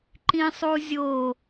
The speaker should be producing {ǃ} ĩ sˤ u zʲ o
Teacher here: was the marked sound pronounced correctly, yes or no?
yes